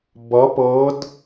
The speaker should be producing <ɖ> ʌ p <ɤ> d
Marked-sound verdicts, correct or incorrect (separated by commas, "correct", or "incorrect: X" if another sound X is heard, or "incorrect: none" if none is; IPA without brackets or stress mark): incorrect: b, correct